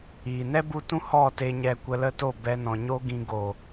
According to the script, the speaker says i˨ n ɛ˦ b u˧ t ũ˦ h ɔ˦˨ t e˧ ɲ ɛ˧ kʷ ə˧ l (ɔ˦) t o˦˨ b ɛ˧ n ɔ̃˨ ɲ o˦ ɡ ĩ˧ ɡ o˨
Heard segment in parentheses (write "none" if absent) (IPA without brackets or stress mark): ə˦